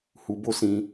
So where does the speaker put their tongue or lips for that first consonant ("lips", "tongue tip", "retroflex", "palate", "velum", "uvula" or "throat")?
throat